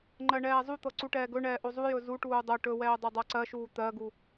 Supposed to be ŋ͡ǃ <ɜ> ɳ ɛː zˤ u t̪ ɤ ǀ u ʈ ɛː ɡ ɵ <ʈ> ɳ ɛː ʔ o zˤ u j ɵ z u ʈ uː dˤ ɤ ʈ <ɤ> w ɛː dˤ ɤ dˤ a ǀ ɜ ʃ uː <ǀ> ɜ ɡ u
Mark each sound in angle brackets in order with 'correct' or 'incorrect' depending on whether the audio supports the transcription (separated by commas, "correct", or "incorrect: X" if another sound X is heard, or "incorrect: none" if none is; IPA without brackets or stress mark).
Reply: correct, incorrect: none, incorrect: ɵ, incorrect: t̪